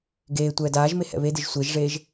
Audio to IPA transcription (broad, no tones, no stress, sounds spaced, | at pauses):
ɡ eː tʷ ɛː d aː ʒ m e h ɛ̰ β e d e ʒ sʷ e ʒ ʐ eː ʒ